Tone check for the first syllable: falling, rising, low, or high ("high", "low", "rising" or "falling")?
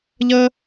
high